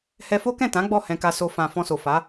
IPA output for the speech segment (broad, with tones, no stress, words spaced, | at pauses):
hɛ˧fo˦kɛ̃˦˨ tã˨˦ ɡ͡bɔ˦˨ hɛ̃˧ka˧so˧ fã˨ fɔ̃˧so˨fa˨˦